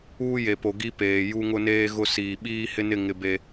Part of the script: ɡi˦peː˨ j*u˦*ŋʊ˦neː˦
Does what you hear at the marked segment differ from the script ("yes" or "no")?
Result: no